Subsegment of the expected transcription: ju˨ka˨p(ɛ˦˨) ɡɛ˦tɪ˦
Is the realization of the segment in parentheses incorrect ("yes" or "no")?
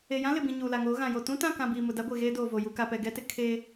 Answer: yes